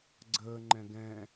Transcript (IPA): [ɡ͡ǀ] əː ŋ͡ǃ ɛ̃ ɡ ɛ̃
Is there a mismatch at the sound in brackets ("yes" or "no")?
no